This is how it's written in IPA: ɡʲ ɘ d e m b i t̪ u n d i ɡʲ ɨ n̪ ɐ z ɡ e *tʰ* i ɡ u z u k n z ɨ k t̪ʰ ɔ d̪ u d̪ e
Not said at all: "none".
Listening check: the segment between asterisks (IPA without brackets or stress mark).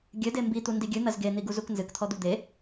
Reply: n̪